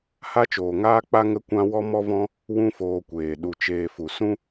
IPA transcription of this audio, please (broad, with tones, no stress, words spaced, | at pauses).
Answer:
ha˦t͡ʃoː˨ŋaː˦k͡pa˦ ŋə˦kʷã˦ wɔ˦mɔ˦vɔ̃˦ | wũ˦foː˧kʷeː˨ ɗu˨t͡ʃeː˨ fu˨sũ˦